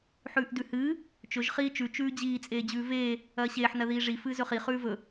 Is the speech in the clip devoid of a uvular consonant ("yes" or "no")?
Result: no